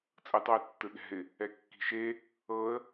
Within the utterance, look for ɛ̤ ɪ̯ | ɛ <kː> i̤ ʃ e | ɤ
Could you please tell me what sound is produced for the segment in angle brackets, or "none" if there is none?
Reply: kː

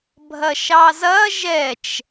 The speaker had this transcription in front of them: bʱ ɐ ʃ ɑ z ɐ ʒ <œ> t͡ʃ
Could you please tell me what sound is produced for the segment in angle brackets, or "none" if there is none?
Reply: ɛ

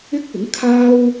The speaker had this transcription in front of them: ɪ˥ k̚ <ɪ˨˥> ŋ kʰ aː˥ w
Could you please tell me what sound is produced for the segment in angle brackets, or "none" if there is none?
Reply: ɪ˨˥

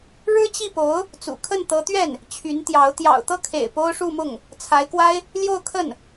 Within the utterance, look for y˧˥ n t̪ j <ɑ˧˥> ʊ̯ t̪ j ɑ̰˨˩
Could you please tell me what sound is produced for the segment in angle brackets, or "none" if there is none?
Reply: ɑ˧˥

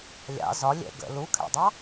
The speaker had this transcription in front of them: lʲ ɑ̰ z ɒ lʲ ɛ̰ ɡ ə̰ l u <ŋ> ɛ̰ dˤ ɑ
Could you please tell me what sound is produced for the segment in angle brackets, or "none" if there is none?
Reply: kʰ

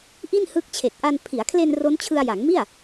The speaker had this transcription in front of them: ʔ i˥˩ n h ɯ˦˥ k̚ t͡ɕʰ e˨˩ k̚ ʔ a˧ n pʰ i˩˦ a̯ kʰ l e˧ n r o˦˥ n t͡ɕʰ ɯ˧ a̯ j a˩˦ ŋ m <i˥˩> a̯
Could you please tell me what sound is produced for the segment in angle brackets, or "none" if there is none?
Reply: i˥˩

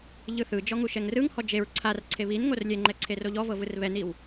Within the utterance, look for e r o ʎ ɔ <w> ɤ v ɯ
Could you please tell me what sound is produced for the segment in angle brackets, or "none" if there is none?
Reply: v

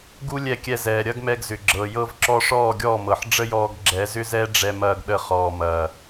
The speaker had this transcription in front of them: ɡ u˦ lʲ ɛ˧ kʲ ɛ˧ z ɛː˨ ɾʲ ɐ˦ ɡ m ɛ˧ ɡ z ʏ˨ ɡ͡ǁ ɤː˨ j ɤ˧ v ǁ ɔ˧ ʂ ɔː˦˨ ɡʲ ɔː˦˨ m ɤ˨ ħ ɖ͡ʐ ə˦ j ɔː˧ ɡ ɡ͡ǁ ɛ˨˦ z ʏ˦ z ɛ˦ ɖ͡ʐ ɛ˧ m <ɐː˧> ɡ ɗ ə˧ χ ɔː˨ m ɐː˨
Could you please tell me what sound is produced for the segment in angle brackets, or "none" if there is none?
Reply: ɐː˧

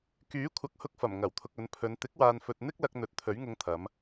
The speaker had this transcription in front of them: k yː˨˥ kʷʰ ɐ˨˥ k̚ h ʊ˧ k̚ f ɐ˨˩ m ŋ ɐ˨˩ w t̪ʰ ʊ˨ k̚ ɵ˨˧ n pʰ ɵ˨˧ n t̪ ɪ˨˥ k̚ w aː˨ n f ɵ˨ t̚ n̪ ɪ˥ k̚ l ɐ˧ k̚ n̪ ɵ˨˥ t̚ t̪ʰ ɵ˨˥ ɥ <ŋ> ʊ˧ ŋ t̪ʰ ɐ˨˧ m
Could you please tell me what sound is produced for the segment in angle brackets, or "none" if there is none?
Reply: ŋ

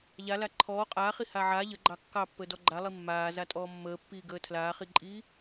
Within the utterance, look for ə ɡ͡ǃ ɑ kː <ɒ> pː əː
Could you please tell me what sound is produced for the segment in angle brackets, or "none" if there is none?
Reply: ɑ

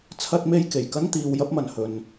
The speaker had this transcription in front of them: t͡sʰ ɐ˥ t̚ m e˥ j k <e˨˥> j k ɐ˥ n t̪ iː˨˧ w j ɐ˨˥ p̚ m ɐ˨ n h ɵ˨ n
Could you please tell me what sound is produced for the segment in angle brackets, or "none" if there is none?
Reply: e˨˩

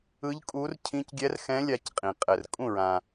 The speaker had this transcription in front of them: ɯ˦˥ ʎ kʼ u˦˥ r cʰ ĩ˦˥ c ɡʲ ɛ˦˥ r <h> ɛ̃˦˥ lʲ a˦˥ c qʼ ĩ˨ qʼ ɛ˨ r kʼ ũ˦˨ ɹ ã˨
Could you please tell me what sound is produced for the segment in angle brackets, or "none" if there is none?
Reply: x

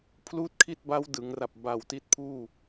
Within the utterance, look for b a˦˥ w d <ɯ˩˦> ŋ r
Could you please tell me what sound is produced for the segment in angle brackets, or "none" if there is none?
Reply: ɯ˩˦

